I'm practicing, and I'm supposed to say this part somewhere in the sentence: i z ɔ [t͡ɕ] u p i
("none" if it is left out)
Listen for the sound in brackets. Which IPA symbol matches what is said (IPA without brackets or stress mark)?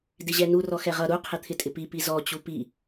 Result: t͡ɕ